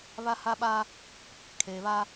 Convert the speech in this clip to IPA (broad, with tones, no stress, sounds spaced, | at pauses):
β a˦ h a˦ ɓ a˦ | kʰ eː˨ β a˦